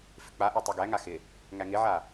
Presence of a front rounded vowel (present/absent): absent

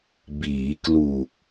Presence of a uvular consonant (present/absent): absent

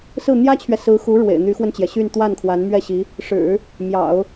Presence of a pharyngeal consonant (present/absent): absent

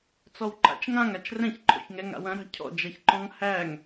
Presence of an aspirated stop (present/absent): present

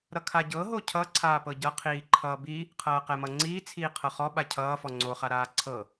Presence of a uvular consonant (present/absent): present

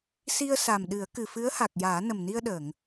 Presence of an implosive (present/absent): present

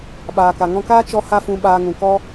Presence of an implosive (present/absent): present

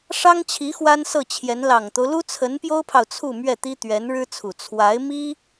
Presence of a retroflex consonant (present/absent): present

